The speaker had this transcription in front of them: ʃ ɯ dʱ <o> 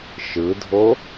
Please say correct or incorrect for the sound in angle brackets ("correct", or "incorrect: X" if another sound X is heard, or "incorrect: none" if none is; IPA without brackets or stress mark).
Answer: correct